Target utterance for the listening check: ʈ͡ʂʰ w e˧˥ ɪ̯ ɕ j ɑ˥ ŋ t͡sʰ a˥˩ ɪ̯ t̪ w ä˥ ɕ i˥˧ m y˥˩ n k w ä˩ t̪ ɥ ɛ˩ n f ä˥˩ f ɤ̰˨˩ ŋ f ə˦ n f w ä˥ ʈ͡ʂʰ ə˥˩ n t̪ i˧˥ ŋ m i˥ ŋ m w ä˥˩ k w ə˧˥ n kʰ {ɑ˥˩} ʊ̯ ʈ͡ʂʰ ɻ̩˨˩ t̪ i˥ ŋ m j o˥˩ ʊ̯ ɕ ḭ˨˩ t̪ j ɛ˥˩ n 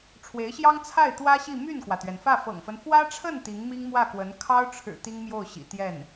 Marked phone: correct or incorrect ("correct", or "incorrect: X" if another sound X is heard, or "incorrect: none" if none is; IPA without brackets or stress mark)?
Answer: incorrect: ɑ˥